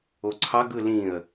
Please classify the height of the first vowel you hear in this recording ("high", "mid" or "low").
mid